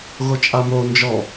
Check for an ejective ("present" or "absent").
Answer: present